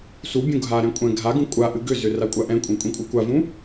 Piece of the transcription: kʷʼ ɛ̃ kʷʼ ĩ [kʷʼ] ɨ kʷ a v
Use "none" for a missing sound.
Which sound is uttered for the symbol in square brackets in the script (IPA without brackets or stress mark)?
kʷʼ